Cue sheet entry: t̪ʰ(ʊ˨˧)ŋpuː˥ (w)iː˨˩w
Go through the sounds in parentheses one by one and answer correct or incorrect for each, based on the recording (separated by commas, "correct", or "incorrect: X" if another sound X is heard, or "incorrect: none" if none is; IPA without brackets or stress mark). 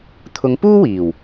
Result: correct, correct